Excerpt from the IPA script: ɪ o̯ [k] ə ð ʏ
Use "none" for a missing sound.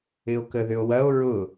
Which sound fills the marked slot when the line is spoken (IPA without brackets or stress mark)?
k